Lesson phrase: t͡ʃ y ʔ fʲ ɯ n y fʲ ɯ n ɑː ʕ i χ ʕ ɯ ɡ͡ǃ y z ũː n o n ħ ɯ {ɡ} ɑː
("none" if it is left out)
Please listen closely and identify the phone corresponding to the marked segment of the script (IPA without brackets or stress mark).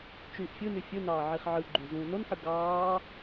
ɡ